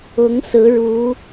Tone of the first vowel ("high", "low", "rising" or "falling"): rising